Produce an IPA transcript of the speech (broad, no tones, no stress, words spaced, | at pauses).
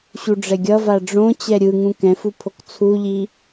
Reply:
ɕuɖ͡ʐɛɡʲʌva ɖ͡ʐõ t͡ɕɛɾʲɯŋũ kɛ̃fu pʰokt͡sʰuʎi